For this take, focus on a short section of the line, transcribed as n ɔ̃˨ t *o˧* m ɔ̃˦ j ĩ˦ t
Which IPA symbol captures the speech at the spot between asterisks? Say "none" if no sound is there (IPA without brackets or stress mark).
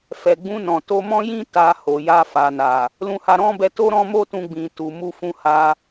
o˧